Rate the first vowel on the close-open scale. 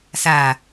open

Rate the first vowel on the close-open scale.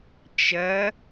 open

